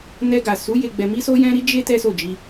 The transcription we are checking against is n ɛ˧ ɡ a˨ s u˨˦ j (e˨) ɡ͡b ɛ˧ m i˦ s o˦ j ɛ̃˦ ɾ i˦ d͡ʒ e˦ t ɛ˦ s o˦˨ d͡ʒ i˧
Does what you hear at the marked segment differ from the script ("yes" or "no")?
yes